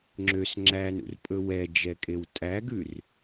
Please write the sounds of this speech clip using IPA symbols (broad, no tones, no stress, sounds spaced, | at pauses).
ŋ͡ǁ ø s ŋ͡ǁ æ n ṵ r pʼ ɵ w ɛ d͡ʒ ɛ kʼ e w tʼ æ ɡ ʉ r